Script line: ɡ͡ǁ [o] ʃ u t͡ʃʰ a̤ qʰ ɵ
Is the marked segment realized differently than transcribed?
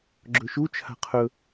yes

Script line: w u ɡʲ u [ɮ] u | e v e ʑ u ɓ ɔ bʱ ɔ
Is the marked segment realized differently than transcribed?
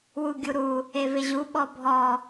yes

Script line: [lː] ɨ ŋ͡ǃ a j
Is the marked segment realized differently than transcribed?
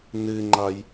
yes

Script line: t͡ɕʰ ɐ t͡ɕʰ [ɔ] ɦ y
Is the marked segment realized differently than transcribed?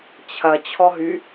no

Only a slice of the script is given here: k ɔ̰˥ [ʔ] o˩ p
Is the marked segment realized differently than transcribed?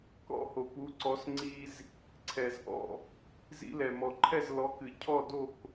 yes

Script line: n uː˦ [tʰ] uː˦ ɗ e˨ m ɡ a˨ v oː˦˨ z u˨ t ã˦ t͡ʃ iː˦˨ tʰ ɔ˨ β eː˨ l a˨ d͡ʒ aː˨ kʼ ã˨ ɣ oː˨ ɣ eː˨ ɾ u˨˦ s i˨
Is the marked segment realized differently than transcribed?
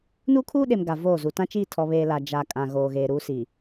yes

